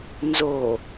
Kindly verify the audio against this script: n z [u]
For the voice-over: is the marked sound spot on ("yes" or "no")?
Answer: no